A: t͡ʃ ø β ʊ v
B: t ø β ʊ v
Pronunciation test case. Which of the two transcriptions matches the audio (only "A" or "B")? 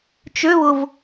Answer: A